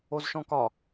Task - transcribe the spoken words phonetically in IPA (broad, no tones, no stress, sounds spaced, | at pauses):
o z ʃ ɔ̃ k ɒ